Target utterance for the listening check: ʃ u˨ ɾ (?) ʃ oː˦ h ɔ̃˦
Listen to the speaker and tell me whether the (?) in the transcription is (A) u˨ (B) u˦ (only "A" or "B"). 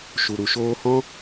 A